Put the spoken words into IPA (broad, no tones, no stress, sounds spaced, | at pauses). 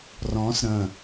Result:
r ɔ̃ s ɾ ə̃